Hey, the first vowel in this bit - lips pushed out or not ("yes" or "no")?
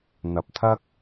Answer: no